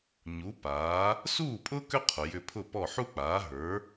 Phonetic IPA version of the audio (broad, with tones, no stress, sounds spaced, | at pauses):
ɲ u˩˥ p aː˩˥ | s uː˥˩ pʼ ʊː˥ k ʏ˥ qʰ ʊ˩ j ʏ˧ pʰ ʊ˥˩ p ɔ˥˩ ħ u˥ k͡p aː˩˥ ɦ ə˞˩˥